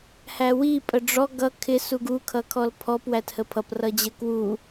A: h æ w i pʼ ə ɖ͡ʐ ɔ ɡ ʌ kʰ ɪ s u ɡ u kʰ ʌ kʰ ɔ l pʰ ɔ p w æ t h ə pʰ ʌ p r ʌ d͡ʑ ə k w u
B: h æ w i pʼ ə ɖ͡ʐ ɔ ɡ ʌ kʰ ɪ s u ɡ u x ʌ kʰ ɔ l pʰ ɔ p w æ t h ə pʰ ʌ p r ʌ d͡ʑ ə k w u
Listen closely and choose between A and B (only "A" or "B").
A